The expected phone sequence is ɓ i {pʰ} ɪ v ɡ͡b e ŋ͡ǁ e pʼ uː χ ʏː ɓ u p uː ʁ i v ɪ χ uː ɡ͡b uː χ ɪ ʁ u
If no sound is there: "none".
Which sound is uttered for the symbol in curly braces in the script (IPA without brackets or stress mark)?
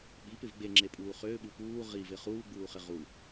p